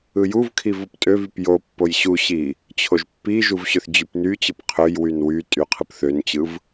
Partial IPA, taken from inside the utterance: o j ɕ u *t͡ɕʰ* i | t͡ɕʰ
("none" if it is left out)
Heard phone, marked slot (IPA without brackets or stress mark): ɕ